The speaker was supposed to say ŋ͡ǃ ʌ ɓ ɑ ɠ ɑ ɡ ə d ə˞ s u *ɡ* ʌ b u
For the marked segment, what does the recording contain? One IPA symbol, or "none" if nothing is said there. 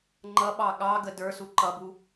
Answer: ǃ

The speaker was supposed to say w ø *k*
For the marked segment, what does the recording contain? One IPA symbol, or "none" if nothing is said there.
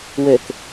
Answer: k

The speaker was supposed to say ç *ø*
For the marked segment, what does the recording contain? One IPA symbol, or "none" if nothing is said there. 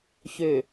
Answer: ø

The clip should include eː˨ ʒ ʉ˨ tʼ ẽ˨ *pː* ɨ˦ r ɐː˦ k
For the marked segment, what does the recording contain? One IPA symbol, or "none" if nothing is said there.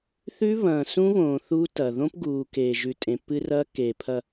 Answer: pː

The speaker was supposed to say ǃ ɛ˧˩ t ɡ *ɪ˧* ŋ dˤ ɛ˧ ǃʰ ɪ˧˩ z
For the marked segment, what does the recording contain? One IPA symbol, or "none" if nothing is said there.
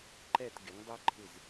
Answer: ɪ˩˧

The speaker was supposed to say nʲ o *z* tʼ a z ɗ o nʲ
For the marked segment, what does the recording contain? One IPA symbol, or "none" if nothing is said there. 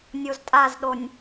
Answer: z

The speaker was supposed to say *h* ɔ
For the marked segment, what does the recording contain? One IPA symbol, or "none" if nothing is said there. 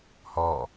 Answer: h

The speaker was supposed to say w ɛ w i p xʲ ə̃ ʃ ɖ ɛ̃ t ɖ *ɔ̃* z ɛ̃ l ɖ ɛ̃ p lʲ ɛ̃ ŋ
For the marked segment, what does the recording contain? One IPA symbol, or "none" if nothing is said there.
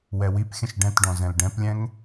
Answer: ɔ̃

